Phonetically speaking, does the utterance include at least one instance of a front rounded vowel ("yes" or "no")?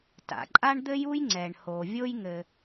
no